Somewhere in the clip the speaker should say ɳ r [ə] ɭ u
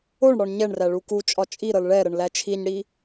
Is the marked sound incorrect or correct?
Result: incorrect